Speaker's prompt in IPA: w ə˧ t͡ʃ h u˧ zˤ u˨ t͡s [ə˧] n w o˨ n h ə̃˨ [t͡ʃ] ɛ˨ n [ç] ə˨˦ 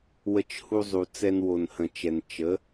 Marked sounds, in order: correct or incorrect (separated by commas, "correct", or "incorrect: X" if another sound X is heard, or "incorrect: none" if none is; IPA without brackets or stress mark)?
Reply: incorrect: ɛ˧, correct, incorrect: t͡ʃ